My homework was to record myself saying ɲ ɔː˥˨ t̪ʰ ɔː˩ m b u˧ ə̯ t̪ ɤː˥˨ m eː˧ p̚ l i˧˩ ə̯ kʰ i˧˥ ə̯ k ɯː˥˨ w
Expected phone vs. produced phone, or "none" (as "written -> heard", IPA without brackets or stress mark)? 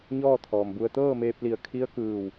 none